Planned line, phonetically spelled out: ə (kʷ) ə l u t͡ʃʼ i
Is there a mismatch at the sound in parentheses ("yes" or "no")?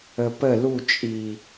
yes